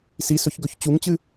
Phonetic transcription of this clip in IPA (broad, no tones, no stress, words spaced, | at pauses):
sisɵçɡɵç t͡ɕuŋt͡ɕɨ